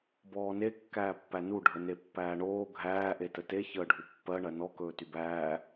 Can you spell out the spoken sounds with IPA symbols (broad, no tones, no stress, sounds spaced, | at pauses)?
b ɔː n e kː æː pː æ n u ɖʱ ə n e pː æː ɳ oː ɡʱ æː ʔ e t ə t e ç əː ɖʱ u pː ɜ ɳ ɜ n ɔ k ɵː t y b æː